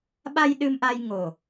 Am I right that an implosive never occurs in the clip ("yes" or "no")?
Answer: no